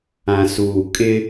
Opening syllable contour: low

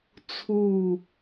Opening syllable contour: low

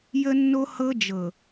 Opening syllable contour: high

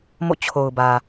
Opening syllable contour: falling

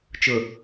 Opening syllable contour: low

